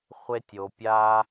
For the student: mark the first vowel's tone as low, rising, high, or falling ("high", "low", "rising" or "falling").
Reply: high